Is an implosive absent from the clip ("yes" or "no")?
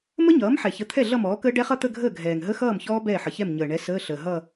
yes